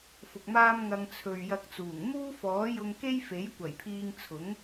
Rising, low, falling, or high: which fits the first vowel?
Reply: low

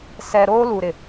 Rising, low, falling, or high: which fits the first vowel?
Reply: low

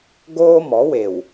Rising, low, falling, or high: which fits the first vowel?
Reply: high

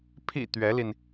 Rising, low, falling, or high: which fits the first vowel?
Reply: low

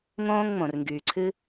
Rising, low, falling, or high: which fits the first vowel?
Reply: high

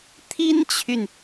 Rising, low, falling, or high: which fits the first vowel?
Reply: high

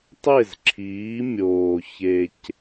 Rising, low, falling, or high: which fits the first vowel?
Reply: falling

